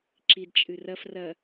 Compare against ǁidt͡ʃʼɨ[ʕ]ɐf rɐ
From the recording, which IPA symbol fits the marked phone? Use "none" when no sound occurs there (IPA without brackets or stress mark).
r